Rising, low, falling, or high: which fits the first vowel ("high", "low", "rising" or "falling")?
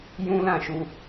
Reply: high